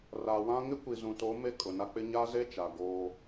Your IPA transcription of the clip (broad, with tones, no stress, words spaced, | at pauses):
ra˨wã˦ ŋɪ˦kʷi˨zũ˨to˨˦ me˦kʼʊ˨na˦k͡pɪ˦ ɲa˦ze˦t͡ʃa˨ ɡoː˦